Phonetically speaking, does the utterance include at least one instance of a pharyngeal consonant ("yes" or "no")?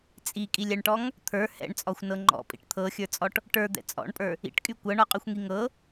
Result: no